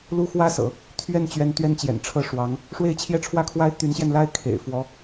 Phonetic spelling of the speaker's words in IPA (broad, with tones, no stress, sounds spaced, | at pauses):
l u˥ x w ä˥ s ɤ̰˨˩˦ | t̪ʰ ɥ ɛ˥˩ n t͡ɕ ɥ ɛ˧˥ n t̪ ɥ ɛ˥ n t͡ɕ j ɛ̰˨˩ n ʈ͡ʂʰ ɤ˥˩ ʂ w ɑ˧˥ ŋ | ʂ w e˥˧ ɪ̯ t͡ɕʰ j ɛ˥˧ ʈ͡ʂʰ w ä˥˩ kʰ w a˥ ɪ̯ t̪ y˧˥ n ɕ j ɛ˧ n l a˥ ɪ̯ kʰ ḛ˨˩ ɪ̯ f w ɔ˧˥